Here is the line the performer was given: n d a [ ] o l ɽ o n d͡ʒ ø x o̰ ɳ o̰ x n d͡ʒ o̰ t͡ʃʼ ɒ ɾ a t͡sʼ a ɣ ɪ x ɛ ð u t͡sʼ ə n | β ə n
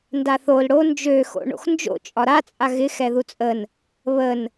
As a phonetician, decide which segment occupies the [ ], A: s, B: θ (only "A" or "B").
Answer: B